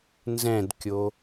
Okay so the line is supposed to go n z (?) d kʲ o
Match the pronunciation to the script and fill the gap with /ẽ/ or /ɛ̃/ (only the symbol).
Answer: ɛ̃